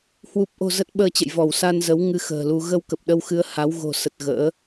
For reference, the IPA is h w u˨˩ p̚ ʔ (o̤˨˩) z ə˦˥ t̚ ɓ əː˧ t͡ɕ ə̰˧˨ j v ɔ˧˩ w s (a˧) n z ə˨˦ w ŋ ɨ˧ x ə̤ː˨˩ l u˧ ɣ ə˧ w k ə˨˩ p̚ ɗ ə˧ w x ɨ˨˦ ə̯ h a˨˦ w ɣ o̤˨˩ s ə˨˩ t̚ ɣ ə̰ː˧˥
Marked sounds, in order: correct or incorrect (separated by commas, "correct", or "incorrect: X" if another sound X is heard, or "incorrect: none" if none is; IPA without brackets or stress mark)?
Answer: correct, correct